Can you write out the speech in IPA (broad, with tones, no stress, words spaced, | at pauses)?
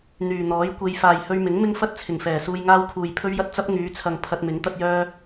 n̪yː˨ n̪ɔː˨˥j kʷe˧j faː˨jhɵ˧ɥmɪ˨˥ŋ mɪ˥ŋfɐ˥t̚ t͡sʰɪ˨˩ŋfɛː˨˩ suː˧jŋaː˥w kʰuː˨jpʰɵ˥ɥjɐ˥t̚ t͡sɐ˥p̚ ŋyː˨˧t͡sʰɐ˨ŋ pʰɐ˧t̚mɪ˨˥ŋ t̪ɐ˧t̚jœː˧